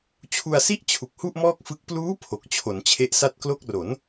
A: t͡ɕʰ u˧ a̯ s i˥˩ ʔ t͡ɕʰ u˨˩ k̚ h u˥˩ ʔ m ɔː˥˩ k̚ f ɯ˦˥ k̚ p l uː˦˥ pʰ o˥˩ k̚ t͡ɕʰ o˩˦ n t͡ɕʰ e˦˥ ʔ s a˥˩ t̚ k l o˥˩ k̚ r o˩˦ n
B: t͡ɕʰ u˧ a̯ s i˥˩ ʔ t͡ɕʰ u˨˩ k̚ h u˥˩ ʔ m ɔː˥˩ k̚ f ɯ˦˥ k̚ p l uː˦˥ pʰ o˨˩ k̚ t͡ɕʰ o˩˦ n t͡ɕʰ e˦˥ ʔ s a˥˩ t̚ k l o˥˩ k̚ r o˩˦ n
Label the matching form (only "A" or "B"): B